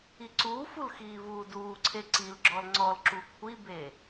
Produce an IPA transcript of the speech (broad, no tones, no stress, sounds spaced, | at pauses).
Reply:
i ǀ uː f u l x iː v uː d uː ǀʰ e ǀ i l ɡ͡ǁ ɔ l ŋ͡ǀ ɔ l ǁ u kʷʰ i b e